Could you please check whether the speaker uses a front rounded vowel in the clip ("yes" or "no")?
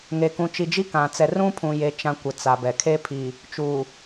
no